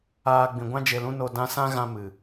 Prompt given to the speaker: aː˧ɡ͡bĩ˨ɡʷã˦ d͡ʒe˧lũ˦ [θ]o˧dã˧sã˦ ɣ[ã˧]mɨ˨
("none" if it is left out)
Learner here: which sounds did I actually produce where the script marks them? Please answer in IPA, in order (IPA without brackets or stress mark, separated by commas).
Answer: n, ã˧